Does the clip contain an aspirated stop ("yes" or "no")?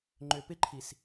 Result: yes